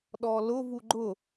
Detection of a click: present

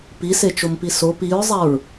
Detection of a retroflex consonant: absent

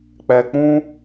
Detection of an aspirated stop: absent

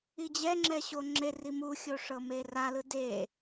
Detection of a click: present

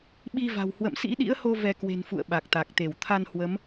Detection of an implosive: present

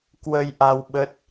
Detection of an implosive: present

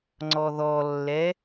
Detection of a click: present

